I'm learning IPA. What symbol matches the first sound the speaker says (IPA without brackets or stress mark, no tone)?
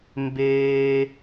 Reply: m